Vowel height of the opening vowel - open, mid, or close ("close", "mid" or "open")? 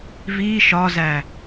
close